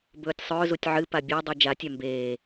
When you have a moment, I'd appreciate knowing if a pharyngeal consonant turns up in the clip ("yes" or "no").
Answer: yes